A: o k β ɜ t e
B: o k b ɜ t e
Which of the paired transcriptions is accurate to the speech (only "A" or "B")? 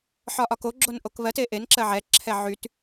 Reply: A